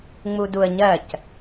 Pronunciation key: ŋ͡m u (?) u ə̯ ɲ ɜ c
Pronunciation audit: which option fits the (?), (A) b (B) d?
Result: B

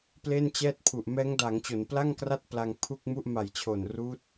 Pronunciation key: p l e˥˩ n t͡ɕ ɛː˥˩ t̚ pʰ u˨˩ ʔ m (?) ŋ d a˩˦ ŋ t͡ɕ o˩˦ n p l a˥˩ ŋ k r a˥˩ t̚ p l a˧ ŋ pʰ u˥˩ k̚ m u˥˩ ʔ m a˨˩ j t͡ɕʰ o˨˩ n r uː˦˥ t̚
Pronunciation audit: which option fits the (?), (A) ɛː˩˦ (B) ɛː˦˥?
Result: B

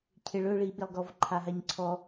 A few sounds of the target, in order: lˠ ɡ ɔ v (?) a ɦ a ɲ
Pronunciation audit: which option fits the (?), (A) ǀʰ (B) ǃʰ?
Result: B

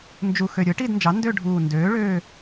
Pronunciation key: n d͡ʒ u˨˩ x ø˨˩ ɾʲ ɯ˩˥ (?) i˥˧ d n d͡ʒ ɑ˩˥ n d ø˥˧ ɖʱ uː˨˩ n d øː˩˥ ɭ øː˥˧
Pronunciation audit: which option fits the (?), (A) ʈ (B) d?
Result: A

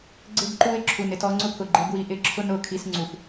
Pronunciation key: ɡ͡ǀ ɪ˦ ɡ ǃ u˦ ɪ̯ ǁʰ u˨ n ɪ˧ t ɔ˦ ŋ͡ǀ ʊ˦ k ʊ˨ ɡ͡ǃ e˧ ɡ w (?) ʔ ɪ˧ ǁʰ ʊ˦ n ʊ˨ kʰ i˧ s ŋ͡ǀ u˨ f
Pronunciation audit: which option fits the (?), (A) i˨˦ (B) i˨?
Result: A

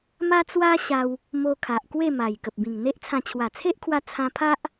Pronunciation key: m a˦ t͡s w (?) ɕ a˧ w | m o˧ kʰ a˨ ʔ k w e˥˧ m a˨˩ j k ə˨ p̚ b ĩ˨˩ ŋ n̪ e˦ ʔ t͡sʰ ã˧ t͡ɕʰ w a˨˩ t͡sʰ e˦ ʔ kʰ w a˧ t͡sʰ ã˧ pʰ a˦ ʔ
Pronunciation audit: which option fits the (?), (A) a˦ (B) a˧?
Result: A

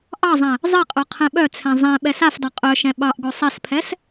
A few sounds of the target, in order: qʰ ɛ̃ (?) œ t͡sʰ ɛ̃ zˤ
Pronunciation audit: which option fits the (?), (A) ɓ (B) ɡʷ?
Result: A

